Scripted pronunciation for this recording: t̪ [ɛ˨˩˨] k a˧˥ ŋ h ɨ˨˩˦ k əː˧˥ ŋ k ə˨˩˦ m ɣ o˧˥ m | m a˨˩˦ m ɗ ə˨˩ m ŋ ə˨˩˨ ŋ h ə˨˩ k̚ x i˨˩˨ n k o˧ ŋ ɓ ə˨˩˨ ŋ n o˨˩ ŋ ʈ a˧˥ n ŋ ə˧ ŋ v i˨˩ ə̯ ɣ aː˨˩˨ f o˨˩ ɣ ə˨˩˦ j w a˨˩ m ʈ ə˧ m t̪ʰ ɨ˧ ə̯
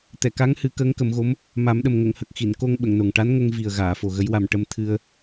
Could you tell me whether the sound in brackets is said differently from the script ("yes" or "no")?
no